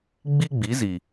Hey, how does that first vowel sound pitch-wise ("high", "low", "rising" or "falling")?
high